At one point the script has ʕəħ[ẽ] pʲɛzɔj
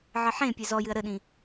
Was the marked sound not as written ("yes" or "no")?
no